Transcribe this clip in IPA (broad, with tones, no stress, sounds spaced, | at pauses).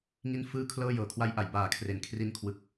ŋ i˥˩ n f ɯː˥˩ kʰ l ɤː˥˩ j ɤː˩˦ kʰ w a˧ j ʔ a˩˦ j b aː˨˩ kʰ r e˨˩ n kʰ r i˦˥ n kʰ w ɯ˨˩ k̚